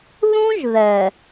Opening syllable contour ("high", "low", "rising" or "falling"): high